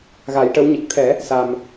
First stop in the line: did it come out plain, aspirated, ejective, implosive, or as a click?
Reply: plain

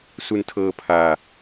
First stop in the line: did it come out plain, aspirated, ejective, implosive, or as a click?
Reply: aspirated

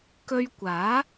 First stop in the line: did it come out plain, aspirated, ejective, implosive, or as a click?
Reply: plain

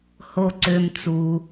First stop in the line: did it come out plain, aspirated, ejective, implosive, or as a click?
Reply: click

